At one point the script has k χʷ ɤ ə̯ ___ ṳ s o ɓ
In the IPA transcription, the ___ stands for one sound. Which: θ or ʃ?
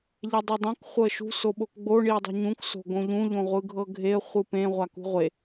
ʃ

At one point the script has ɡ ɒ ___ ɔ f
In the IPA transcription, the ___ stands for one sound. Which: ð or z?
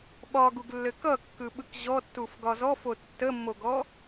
z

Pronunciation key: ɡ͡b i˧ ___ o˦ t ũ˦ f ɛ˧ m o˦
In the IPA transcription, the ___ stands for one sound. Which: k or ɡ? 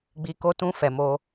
k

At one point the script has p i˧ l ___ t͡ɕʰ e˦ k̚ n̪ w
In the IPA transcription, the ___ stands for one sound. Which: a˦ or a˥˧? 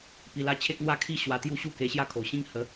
a˥˧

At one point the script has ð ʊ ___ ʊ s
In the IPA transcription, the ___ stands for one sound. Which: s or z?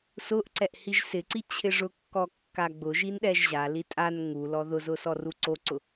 z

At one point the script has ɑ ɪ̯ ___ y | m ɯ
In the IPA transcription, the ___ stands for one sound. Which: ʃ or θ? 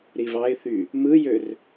θ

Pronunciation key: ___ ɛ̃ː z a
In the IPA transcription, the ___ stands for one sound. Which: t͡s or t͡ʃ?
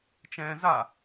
t͡ʃ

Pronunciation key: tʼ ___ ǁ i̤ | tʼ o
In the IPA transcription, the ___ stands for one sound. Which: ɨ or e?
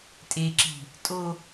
e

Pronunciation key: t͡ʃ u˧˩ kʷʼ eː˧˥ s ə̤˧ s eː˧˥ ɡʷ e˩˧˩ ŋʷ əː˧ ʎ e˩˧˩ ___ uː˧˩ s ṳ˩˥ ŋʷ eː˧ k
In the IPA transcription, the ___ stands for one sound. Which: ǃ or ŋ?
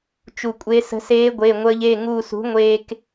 ŋ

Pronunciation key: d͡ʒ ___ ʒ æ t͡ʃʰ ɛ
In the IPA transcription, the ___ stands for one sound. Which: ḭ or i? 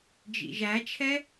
ḭ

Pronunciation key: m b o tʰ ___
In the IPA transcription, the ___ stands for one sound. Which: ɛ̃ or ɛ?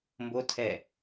ɛ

